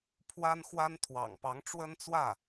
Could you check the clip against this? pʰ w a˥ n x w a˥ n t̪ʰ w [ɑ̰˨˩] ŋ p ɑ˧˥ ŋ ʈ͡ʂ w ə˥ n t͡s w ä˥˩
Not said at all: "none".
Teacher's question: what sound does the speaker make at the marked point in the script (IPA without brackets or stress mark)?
ɑ̰˨˩